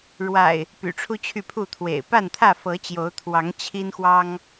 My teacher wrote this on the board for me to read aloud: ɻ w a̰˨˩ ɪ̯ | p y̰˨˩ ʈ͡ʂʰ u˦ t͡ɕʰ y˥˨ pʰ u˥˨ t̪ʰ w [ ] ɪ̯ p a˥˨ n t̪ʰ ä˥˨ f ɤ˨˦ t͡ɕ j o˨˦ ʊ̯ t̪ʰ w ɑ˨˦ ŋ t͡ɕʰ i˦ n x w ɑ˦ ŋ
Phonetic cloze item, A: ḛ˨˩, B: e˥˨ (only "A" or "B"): A